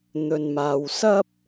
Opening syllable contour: low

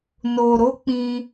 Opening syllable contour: low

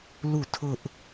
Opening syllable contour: falling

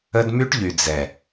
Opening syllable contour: high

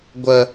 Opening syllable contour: high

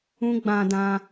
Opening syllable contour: high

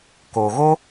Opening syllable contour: low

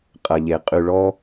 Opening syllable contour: low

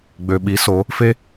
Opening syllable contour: low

